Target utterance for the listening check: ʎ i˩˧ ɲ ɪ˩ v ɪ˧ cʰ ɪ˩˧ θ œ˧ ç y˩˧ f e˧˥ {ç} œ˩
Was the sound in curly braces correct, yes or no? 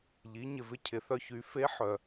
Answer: no